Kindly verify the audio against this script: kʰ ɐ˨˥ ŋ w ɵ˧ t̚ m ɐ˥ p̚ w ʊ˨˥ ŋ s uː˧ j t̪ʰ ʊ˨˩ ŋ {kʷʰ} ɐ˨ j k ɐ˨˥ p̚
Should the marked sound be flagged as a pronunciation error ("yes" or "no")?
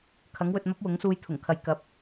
yes